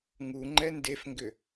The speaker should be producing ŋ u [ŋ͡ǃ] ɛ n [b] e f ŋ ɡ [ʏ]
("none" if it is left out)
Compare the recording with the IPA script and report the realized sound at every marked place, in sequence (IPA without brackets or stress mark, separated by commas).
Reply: ŋ͡ǃ, d, ʏ